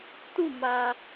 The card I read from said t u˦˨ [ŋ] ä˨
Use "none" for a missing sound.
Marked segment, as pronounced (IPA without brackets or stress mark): m